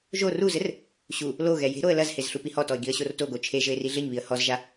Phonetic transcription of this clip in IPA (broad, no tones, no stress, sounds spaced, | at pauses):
ʒ o r u z ɘ r | ɕ u | l o ɣ ɛ j e̤ ɾ o ə̯ l ɐ z h e z ɬ u p i h ɔ t ɔ ɪ̯ ɡ i ə̯ ɕ o r t o ɡ o t͡ʃʰ e ʒ ɘ ɪ̯ r i ɮ ɘ ɲ β i ə̯ h ɔ z ʒ a